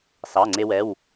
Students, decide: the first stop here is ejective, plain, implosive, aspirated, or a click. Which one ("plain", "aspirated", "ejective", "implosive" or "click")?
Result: click